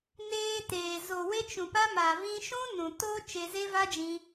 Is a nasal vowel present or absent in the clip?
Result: present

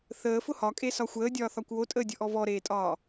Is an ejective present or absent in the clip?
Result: present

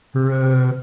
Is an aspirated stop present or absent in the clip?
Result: absent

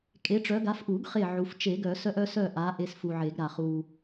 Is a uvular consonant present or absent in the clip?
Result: present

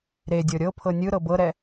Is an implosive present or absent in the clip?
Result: absent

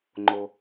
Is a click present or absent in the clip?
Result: present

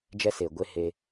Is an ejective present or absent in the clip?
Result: absent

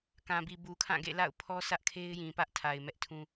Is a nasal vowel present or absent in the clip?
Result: present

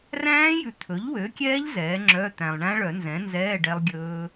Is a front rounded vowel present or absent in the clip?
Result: present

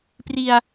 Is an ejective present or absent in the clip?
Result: absent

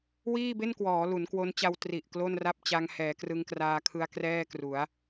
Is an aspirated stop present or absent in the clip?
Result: present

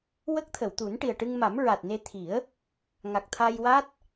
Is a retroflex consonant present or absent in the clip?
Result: present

